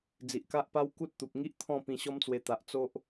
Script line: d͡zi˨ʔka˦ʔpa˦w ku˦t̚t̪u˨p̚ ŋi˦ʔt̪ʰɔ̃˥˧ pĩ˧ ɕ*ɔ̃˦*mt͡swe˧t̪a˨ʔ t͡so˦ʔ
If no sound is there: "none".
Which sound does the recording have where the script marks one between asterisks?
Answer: ɔ˦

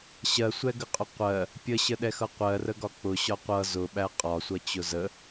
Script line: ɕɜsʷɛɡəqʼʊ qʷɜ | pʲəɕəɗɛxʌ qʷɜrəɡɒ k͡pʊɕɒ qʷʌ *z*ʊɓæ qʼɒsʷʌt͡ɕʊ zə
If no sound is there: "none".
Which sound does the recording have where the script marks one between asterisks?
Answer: z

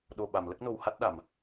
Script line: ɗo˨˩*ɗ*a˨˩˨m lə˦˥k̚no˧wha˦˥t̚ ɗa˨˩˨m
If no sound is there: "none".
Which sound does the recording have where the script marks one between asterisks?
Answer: ɓ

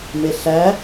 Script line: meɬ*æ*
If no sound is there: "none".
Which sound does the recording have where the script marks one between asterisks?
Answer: æ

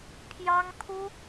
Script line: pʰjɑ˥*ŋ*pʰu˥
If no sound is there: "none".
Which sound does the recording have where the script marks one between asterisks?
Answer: ŋ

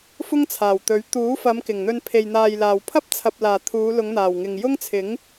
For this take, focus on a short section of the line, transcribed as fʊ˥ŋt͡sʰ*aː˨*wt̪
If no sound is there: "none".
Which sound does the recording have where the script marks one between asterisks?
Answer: aː˨˩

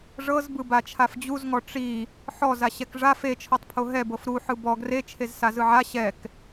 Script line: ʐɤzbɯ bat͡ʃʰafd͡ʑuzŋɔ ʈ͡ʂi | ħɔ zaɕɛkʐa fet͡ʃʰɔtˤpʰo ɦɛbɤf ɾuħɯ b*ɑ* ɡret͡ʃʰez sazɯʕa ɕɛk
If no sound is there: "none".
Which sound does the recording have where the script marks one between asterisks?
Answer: ɔ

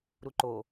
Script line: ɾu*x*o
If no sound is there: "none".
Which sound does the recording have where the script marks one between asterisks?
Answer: ǃ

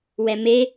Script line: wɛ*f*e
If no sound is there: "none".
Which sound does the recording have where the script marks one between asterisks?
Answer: m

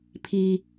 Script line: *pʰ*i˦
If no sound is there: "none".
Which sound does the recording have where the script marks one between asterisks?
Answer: pʰ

